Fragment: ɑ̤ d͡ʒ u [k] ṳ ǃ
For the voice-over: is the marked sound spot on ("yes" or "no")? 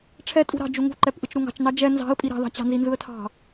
no